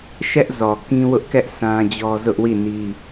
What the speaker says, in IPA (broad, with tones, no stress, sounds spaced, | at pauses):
ʃ ɛ˦ ʔ z ɔ˨ k ĩ˦ w ʊ˦ ʔ k ɛ˦ ʔ s ã˦ d͡ʑ ɔ˦ z ʊ˦ ʔ w i˦˨ n i˦